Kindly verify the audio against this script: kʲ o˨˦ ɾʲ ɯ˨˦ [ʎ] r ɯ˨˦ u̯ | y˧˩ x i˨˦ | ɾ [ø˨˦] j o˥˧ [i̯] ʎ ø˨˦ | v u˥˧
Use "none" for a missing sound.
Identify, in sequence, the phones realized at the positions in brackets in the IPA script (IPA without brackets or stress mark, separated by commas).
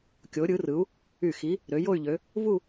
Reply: none, ø˨˦, y̯